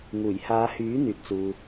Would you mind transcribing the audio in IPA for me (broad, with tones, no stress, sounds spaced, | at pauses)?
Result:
ŋ uː˨˩ j h aː˨˧ h yː˨˥ n̪ yː˨ t̚ t͡s uː˨